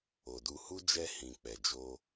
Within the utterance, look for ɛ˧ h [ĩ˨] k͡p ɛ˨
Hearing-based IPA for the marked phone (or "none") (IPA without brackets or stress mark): ĩ˨